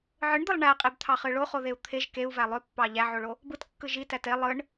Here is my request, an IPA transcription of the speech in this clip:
ʕ ɯ ɳ d̪ ɯ lˠ ɳ æ qʼ e b t̪ʰ ɑ χ ɯ ɭ o χ o ð e u̯ t̪ʰ e ʒ k e u̯ v æ lˠ ø pː ɑ ʎ æ ʕ o ɭ o | b ɯ t kː ɯ ʒ i t æ t e lˠ ɯ ɳ

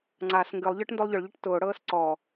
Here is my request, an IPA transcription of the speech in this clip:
ŋ͡ǀ a s ŋ ɡ ɨ lˠ ʎ ə˞ ʈ n d o lˠ ʎ ʊ ɭ ʎ ɨ ʈ t ʊː ɽ ɤː s ǀ ɔ

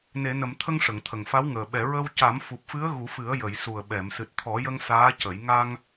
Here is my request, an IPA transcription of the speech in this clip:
n e˨˩˨ n ə˨˩˨ m t̪ʰ ə˧ ŋ ʂ ə˨˩˨ ŋ t̪ʰ ə˨˩ ŋ f a˧˥ w ŋ əː˨˩ ɓ ɛ˨˩˨ ɹ ə˧ w c a˨˩˦ m f u˨˩ p̚ f ɨ˧˥ ə̯ ɣ u˨˩˦ f ɨ˨˩˦ ə̯ j ə˨˩˨ j s u˨˩ ə̯ ɓ ɛ˨˩˨ m s ɨ˨˩ t̚ t̪ʰ ɔ˨˩˦ j ə˧ ŋ s aː˧˥ c ə˨˩˦ j ŋ a˧ ŋ

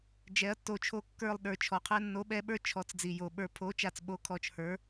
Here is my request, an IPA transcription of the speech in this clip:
d͡ʒ ɛ˨˥ ɐ̯ tː o˨˥ t͡ʃʰ o˦˨ kː ə˞˦˨ lˠ ɗ ə˞˨˩ t͡ʃʰ ɔ˨˩ qʰ ɛ˦˨ nː o˨˥ ɓ ɛ˨˥ ɓ ə˞˦˨ t͡ʃʰ ɔ˨˥ t͡s d͡z i˨˩ j o˨˩ ɓ ə˞˦˨ pʰ o˨˥ t͡ʃ a˨˩ t͡s ɓ o˨˥ kʰ ɔ˨˩ t͡ʃ h ə˞˨˥

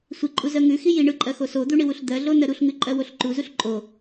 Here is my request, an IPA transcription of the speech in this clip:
sʷ i ǃʼ u z ɜ ŋ ʉ x i j i ɳ ɯ ǃʼ ɜ x o s o d̪ u ɳ i w u ɬ d̪ ɜ ɮ o n ɜ ɾ u ɬ ŋ ʉ ǃʼ ɜ w o ɬ ǃ u z u ɬ ǃʼ o

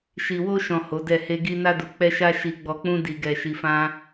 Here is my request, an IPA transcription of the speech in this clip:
ʃ i˨ w o˧ ʃ ɔ̃˨ h o˨˦ d ɛ˦˨ h e˧ ɡ i˧ n a˧ d u˨ k͡p ɛ˧ ʃ a˧ ʃ i˧ ɡ͡b ɔ˧ k͡p ũ˦ d i˧ ɡ ɛ˧ ʃ i˧ f ã˦

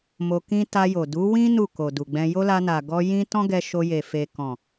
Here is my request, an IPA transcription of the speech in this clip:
m o˧ k ĩ˦ t a˧ j o˨ d u˨˦ w ĩ˦ n u˦˨ k o˨ d u˨ ɡ͡b ɛ̃˧ j o˦ l a˧ n a˨ ɡ ɔ˧ j ĩ˦ t ɔ̃˦ ɡ ɛ˧ ʃ o˧ j e˨ f e˨ k ɔ̃˨

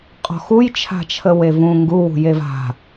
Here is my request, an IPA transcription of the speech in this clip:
qʼ ɔ̤ x u j t͡ʃʰ a̤ t͡ʃʰ ə w e v ũ ŋ ɡ u w ṳ j e v a̤

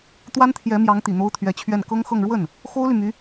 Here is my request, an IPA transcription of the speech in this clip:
t̪ w a˥ n t̪ʰ j ɛ˧˥ m j ɑ˧˥ ŋ t̪ i˨˩ n̪ o˥ ʊ̯ t̪ʰ ɥ ɛ˧˥ t͡ɕʰ ɥ ɛ˥˩ n k ɤ˥ ŋ x ɤ˥˧ ŋ ɻ w ə˥˩ n | x o˥ ʊ̯ l y˨ m y˧˥

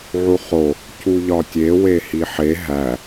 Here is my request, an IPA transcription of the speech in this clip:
ʕ u χ o | c u ʎ ɒ tʲ e w e h i ħ e ɦ æ

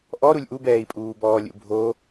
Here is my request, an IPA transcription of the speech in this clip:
ʔ ɔ ɾ u lʲ ʔ u b ɛː i̯ pʼ uː b ɔː lʲ ṵ bʱ o

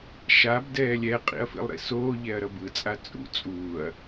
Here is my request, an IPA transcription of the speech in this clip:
ʃ a b d ɛː lʲ ɛ qʼ ḭ ɐ̯ f ḭ lˠ ɾ ḭ s oː ʎ ɛ ɐ̯ ɾ ʌ b ɯ t͡sʼ a t͡sʼ ṵ t͡sʼ uː ɐ̯

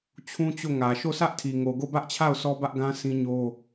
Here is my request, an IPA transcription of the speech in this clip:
t͡ɕʰ ũ˦ t͡ɕ o˦˨ ŋ ä˨ ʃ o˦˨ s ä˦ ʔ tʰ i˨ ŋ o˨ ɡ o˦˨ b ä˦ ʔ t͡ɕʰ a˦˨ ʊ̯ sʰ ɔ˦ b ä˦ ʔ ɡ ã˦ s ĩ˦ ɲ o˦

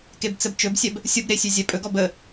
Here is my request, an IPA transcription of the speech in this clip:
k e b t͡s ə b t͡ʃ ɵ b sʲ ɛ b | sʲ ʊ b ɾ e sʲ ʉ zʲ ɛ pʼ ɵ ɡ ɔ b ə

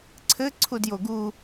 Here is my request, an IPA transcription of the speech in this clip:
ǀʰ ɘ ǀʰ u d j o ɡ u

